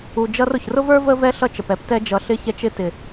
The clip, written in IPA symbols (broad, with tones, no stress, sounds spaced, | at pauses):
u˧ d͡ʒ ʌ˦ r ʊ˨ ç r ʊ˦ v ə˞˦ v ə˦ v ɛ˦ ɬ ʌ˦ t͡ʃ ə˨ p ɛ˦ p t ɛ˧ d͡ʒ ʌ˨ ɬ ɪ˦ ç ɛ˧ t͡ʃ ɪ˧ t ɪ˨